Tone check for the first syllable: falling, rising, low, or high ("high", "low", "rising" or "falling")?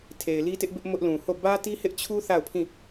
low